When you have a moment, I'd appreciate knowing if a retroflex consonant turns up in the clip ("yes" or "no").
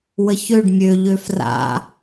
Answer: yes